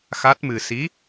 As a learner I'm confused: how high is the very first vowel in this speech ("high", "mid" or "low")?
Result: low